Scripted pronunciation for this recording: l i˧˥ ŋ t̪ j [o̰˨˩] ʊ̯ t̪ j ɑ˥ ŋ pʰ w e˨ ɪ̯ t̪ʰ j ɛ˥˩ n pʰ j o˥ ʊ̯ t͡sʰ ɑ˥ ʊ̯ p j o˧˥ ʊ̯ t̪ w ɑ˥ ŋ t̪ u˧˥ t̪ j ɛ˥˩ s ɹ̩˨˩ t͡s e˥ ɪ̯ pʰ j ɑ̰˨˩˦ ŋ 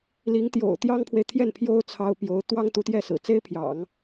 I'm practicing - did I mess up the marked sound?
no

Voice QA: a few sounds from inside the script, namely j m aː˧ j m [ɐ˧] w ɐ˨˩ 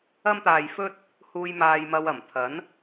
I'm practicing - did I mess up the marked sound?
no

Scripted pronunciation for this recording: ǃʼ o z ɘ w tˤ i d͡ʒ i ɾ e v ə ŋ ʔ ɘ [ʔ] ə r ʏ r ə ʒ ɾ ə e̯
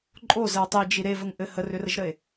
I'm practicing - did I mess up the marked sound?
yes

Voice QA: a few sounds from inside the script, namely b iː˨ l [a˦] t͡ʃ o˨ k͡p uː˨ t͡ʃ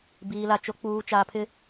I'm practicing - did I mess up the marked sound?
yes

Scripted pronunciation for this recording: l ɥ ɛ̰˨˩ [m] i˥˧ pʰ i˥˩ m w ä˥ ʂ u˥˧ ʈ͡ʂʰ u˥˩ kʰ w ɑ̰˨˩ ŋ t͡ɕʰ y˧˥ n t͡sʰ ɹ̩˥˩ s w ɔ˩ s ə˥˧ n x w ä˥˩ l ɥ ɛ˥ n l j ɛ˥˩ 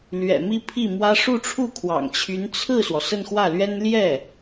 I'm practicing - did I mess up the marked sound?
no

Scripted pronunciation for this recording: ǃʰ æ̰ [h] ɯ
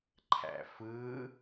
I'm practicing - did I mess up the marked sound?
yes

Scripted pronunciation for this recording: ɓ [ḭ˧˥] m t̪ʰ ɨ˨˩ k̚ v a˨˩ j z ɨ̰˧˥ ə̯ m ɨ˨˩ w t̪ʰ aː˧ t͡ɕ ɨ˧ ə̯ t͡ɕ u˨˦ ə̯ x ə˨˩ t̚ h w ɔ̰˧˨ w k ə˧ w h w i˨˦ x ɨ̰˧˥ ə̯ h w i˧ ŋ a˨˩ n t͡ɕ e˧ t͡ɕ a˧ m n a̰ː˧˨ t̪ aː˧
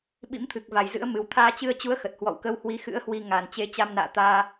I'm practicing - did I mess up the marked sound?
no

